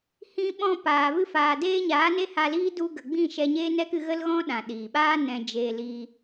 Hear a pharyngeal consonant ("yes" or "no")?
no